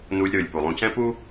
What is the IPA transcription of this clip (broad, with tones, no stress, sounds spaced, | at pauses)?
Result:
n uː˧ lʲ ɾ ɯː˩ lʲ p u˩ lˠ ũ˧ c ɛ̃˥ p uː˥